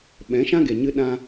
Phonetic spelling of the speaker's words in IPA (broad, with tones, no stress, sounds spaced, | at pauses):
ɓ ɛ̃˨˦ ʃ ã˦ ɡ e˨ ɲ ɨ˦ ɗ ã˦